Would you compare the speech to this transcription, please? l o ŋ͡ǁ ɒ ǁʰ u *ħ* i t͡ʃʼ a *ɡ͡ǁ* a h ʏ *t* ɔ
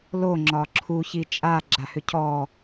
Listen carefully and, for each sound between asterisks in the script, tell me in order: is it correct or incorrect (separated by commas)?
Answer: incorrect, correct, incorrect